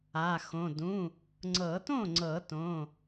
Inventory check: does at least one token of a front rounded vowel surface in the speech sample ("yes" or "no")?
no